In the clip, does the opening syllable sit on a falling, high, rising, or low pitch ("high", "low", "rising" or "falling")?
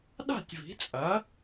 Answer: falling